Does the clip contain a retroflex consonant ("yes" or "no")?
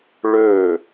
yes